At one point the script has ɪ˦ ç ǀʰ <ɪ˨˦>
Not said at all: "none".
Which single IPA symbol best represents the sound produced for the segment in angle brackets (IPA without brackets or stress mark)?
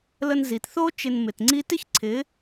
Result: ɪ˨˦